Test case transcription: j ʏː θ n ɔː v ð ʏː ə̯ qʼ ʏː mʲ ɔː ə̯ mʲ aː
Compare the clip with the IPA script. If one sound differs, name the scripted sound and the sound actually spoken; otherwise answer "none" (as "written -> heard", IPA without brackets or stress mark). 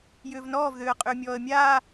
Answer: θ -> v